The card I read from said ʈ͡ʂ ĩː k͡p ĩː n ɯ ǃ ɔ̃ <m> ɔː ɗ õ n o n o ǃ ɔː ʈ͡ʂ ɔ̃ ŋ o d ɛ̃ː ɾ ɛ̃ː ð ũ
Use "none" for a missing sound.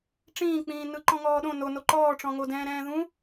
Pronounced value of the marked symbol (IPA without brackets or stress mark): ŋ